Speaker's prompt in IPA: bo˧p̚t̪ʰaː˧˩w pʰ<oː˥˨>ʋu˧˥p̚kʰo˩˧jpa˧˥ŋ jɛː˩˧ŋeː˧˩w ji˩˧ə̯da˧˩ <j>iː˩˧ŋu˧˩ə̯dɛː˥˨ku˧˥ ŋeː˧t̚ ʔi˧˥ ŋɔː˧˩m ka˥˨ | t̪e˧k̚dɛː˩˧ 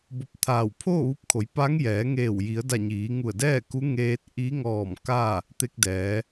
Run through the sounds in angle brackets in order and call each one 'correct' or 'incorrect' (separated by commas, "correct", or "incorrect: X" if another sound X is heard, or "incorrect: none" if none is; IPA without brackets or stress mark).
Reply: correct, incorrect: ɲ